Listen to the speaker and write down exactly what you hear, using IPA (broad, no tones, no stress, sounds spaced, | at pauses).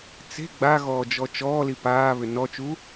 t͡s e̤ ɡ͡b a ɣ ɔː d͡ʒ ɔ t͡ʃ ɔː l i p aː β ʏ n ɔ t͡ʃ u